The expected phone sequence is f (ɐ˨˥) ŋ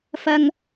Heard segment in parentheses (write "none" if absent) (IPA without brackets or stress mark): ɐ˧